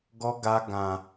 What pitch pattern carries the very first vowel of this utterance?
high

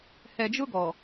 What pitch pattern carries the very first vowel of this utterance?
low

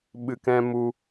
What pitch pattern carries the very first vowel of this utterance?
low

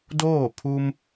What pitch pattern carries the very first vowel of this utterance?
falling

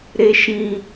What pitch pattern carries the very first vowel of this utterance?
high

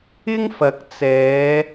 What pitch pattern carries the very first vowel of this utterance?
high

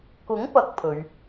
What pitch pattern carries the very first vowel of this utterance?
rising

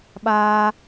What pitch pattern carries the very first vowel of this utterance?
high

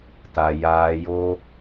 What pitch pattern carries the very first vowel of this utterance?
low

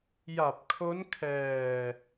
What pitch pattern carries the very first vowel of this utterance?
low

